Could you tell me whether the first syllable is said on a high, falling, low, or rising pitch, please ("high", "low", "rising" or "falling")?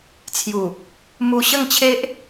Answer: low